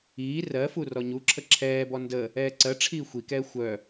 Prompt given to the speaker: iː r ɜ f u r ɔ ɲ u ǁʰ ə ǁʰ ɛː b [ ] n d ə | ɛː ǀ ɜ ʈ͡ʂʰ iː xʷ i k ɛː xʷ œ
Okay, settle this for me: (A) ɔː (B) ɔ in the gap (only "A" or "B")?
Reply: B